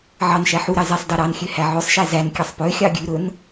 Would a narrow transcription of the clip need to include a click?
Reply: no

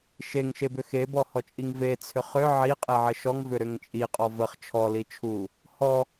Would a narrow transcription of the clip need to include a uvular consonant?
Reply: yes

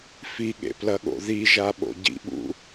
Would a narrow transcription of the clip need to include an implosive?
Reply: yes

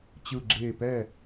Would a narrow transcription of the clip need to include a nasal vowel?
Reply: no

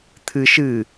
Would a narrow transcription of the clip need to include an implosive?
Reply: no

